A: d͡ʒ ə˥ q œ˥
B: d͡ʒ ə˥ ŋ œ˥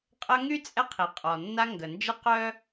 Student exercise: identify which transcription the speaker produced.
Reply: A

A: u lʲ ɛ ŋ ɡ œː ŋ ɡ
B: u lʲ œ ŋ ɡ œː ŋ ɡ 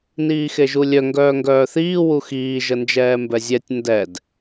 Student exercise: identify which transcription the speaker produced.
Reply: B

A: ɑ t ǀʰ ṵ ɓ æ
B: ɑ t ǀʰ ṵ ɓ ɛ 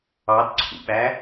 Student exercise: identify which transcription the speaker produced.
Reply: A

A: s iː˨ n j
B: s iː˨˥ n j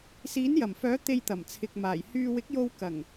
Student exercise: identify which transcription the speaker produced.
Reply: B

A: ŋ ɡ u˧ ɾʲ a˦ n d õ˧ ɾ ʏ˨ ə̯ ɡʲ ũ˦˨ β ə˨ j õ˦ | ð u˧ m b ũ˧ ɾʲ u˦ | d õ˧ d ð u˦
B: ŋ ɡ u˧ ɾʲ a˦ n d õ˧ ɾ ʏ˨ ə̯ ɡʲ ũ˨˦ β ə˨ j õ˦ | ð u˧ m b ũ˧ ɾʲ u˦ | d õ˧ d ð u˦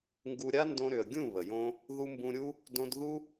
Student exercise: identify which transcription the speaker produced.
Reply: A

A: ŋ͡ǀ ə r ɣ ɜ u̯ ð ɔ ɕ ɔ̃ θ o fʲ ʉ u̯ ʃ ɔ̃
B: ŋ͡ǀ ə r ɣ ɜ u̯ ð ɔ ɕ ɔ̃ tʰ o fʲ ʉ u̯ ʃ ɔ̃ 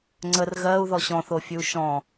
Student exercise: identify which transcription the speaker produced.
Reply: A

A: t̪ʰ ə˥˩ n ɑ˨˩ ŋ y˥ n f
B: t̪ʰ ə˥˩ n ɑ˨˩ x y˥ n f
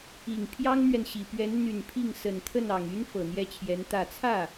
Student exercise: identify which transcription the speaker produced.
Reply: A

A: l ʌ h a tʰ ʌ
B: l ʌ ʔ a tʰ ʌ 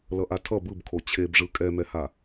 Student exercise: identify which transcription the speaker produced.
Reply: B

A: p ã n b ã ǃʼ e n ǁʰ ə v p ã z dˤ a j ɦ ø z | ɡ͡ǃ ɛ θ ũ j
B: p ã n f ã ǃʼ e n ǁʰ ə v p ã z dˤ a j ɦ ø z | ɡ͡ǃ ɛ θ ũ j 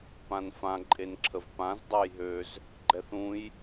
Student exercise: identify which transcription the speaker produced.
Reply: B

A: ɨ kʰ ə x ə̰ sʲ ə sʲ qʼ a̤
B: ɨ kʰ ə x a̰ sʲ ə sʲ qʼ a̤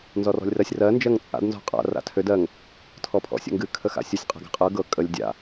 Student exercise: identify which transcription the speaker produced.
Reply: B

